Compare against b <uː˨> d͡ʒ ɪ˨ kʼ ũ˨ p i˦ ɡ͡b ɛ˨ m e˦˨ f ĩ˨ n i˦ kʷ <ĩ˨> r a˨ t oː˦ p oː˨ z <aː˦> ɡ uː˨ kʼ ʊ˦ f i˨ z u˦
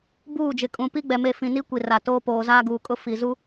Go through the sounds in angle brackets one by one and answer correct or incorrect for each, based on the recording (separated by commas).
incorrect, incorrect, correct